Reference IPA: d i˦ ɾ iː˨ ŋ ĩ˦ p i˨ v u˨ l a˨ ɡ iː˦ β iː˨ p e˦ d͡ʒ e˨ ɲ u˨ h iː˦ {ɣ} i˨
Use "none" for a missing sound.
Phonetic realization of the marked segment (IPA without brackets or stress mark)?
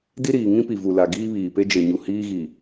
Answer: ɣ